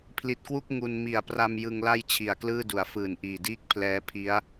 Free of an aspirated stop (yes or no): no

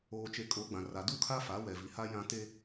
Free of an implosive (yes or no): yes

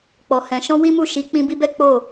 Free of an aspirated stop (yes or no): yes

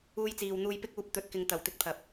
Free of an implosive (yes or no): yes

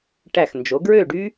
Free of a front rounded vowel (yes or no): no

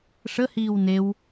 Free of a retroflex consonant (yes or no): no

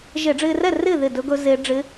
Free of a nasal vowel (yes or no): yes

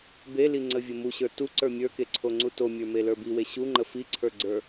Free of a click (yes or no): no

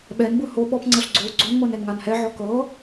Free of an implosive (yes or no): no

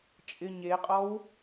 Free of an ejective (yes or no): no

